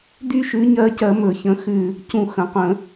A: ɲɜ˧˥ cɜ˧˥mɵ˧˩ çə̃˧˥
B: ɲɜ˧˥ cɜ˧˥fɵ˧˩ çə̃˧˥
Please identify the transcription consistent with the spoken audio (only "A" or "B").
A